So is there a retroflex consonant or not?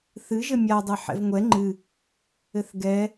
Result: no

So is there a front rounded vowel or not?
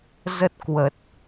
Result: no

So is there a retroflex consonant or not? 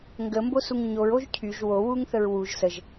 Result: no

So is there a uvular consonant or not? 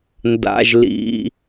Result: no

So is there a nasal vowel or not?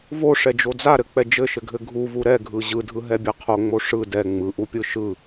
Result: no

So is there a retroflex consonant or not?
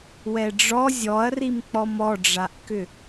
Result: yes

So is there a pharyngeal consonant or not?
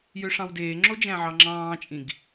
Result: yes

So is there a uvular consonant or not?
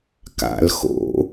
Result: no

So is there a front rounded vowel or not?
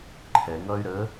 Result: yes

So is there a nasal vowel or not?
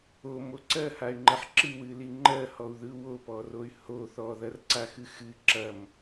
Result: no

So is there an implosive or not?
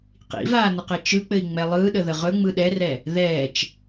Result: yes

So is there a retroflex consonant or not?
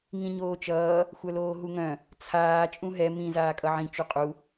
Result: no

